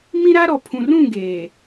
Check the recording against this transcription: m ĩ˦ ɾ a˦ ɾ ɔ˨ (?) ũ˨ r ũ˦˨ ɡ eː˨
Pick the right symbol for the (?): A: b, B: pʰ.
B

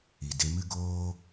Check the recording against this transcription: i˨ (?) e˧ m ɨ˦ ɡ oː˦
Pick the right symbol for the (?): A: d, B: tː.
A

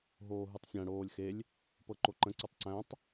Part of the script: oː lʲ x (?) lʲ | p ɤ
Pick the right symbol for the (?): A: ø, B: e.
B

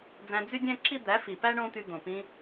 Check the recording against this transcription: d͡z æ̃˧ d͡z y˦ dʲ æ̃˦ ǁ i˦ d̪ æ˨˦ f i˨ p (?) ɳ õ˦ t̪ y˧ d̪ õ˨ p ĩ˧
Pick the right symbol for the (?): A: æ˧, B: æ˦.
B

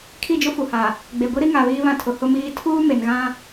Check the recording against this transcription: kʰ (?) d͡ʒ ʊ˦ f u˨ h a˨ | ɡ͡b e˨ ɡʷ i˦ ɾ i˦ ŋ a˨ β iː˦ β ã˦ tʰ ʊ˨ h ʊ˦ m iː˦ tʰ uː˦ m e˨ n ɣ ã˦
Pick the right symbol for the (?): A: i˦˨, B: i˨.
A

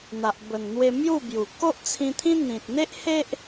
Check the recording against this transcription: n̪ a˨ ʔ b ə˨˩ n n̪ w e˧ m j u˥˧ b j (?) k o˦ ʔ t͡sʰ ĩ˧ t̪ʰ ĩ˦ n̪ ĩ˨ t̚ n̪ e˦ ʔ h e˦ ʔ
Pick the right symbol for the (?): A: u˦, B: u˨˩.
B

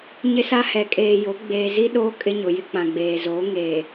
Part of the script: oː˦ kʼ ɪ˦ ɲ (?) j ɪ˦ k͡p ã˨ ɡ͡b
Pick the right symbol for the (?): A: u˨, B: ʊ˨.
B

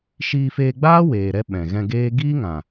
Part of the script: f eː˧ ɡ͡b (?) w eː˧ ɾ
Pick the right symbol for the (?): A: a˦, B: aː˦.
B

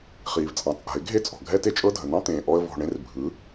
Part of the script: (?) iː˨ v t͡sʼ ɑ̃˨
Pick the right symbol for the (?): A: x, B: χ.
B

